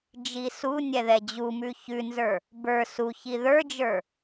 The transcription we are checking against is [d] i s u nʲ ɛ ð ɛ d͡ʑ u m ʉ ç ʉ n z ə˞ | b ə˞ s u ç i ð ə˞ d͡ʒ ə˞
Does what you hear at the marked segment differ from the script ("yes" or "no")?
yes